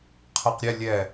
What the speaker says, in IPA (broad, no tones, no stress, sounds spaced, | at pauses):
qʰ ɜ q ɾʲ ɛ lʲ ɛ